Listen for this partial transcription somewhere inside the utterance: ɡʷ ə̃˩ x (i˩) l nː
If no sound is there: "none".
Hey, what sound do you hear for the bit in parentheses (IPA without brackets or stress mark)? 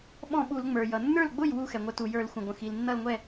i˩